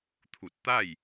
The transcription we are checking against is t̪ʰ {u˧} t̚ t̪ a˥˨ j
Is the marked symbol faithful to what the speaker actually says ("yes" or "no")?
no